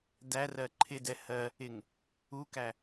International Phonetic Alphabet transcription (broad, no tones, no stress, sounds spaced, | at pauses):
d æ r ɜ ǃʰ ɪ d ɛ h ɜ | ɪ ŋ | u k æ